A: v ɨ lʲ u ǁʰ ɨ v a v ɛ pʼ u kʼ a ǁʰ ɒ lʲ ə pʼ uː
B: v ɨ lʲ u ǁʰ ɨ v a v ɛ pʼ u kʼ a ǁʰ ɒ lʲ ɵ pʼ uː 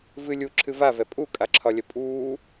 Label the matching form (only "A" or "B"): A